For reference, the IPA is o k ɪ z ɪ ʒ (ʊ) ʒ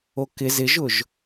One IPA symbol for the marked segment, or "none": ʊ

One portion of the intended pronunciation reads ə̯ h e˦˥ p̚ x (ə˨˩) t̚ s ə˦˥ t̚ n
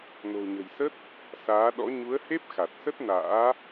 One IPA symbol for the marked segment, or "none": a˨˩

